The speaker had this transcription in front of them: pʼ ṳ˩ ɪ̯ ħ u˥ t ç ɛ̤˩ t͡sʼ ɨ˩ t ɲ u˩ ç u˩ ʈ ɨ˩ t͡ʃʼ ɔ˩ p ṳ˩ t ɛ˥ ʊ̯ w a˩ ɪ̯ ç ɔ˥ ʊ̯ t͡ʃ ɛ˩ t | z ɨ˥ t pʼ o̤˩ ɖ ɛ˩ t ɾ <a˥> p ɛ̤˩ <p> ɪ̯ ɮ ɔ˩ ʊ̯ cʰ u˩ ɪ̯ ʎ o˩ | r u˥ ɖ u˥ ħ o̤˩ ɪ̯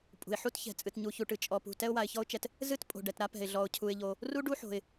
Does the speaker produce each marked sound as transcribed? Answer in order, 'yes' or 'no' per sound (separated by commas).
yes, no